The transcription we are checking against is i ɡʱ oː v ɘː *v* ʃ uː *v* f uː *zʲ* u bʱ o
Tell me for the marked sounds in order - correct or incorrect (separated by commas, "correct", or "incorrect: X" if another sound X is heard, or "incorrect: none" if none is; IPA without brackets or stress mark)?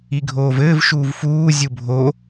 correct, correct, correct